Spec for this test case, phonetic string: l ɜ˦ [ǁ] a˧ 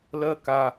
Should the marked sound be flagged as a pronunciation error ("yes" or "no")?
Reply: yes